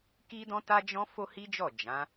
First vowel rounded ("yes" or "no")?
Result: no